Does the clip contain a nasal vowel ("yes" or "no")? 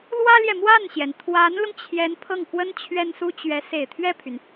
no